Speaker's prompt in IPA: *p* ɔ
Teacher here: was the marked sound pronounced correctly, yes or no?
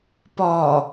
yes